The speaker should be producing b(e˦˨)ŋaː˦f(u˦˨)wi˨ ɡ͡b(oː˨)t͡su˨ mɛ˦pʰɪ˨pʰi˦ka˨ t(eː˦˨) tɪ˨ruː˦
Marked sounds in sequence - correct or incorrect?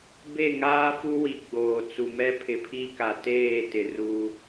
correct, incorrect, correct, correct

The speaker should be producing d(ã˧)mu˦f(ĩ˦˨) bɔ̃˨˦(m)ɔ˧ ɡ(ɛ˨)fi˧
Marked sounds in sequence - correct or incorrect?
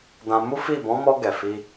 correct, incorrect, correct, correct

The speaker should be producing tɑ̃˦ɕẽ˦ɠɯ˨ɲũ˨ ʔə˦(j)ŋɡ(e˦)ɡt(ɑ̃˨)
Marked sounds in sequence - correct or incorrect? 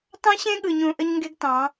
incorrect, correct, incorrect

